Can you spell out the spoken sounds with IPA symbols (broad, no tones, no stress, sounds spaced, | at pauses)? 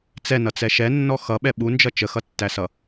t͡s ɛ n ʌ t͡s ɛ ʃ ɛ nː ɔ x ʌ ɓ ɛ ɓ u n d͡ʒ ʌ t͡ʃ ə x ʌ tː æ s ʌ